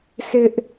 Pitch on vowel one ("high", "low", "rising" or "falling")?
high